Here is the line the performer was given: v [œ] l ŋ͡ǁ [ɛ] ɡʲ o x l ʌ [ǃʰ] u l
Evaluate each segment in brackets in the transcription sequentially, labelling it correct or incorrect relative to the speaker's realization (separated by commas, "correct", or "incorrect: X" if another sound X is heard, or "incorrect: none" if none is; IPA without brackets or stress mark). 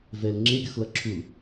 incorrect: ɛ, incorrect: e, incorrect: ǁʰ